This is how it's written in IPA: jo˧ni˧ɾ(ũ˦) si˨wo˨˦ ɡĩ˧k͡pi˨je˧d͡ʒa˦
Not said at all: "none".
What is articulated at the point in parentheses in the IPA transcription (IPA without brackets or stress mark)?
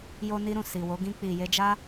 ũ˨